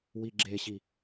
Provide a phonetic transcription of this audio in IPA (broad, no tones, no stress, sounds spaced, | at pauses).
w i ɡ͡ǁ e ɕ i